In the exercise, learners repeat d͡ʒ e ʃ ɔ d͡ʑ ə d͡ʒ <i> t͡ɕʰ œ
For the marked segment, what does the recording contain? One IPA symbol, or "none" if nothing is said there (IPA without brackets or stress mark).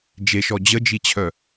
i